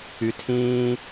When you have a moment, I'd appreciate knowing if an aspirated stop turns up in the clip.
yes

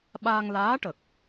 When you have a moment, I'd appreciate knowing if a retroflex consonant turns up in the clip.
yes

